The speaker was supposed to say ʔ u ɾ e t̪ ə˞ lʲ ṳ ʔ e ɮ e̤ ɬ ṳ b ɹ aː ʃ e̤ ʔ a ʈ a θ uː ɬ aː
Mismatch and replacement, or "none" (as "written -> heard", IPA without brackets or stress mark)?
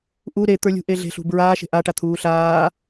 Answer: θ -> t̪ʰ